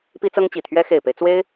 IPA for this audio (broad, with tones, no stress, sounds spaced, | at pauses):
p i˥ t͡s ɤ˥ ŋ t͡ɕ i˨˩ t̪ʰ ɥ ɛ˥ x e˨˩ ɪ̯ p e˦ ɪ̯ t͡s w e˥ ɪ̯